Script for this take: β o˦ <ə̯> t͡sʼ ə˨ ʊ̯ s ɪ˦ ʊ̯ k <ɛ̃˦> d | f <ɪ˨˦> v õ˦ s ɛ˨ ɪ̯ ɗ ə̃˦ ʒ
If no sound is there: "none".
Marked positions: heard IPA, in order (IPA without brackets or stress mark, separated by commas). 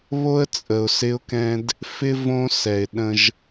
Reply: ə̯, ɛ̃˦, ɪ˦